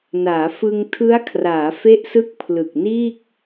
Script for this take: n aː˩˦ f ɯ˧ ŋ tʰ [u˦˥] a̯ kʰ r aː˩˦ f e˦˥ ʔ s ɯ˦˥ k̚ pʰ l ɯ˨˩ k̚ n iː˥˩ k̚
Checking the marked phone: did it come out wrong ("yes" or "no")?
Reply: yes